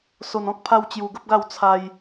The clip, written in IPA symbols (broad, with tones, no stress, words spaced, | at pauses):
so˧nɔ̃˦k̚ pʰa˦wt͡ɕju˧ɡə˦p̚ɡa˥˧w t͡sʰa˧j